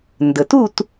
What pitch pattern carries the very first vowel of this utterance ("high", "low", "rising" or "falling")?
low